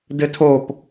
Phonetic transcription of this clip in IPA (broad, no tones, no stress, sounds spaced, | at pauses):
d ɘ tʰ o p